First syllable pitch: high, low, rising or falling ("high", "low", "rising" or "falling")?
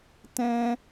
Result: high